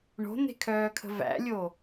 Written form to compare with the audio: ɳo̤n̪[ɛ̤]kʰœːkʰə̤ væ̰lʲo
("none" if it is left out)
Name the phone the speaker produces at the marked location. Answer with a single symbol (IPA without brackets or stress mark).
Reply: e̤